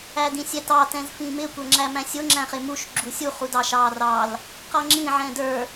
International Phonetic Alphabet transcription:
æ d ĩ sʲ ɛ t ɑ t ɛ̃ z f ĩ m ɪ kʷ ə˞ ŋ͡ǁ æ m æ̃ sʲ ʊ ŋ͡ǁ æ̃ χ ɪ m u ʃ ɡ͡ǁ u sʲ u χ u d ɑ ʃ ɑ r ɑ l | q ʌ ŋ͡ǁ ĩ ʕ ɛ̃ d ə˞

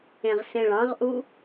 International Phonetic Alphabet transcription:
ẽ ʁ s ẽ ɭ ɑ̃ ʁ ʔ u

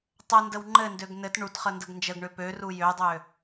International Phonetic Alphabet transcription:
tˤ ə n d ə w ŋ͡ǃ ɘ n d ø ɡ n ɘ t ɳ u t χ ə n d ə ɡ n d͡ʒ ə ɡ ɳ ø p ø r u j ø dˤ ø

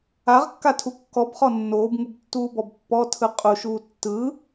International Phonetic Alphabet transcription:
a ʁ kː a tʰ u kː ɔ b χ ɔ nː oː b ŋ u b tː uː b ɔ b pː ɔ tʰ ɯ qʼ u ʃ uː tː ɯ

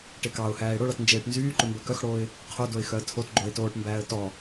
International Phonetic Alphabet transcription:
ʈ e k ɑ ʊ̯ h æː ɪ̯ ɽ o ɭ ɑ t n d͡ʒ eː ʈ n z yː ǃ ɵ m b œ k œ x ɽ oː ɪ̯ | qʰ o d o ɪ̯ x œ ə̯ tʰ o t ɡ͡ǃ o ɪ̯ t oː ʈ m b æː ə̯ t ɔ

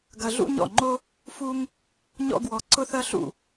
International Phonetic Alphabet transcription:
ɡ ɐ˧ ɮ ṵ˥ ɲ ɔ̰˥˩ ŋ͡ǃ o˥ | f u˥ ŋ | ɲ ɔ̰˥ ɡ w ɔ˧ ǀ ʊ˥ θ ɐ˥ ɬ ṵ˥˩

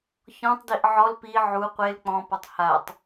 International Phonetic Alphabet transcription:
ç ɔ̃ tˤ d i ʔ ʕ ɔ l p i ʕ u qʷ e l k͡p ɔ̃ p ɔ tˤ h a tˤ

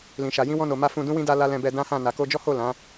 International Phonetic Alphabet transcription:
l ĩ˨ ʃ a˨ j ĩ˧ w ɔ̃˧ n o˨ m a˧ f ũ˧ d ũ˦ w ĩ˦ d a˧ l a˧ l ɛ̃˧ b ɛ˧ d ã˦ h ã˦˨ n a˨ k o˧ d͡ʒ ɔ˦ h o˦˨ l ã˨˦

